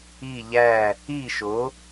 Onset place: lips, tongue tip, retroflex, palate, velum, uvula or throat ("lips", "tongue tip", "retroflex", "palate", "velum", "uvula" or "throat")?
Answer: palate